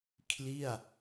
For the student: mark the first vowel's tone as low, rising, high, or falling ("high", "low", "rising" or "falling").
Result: falling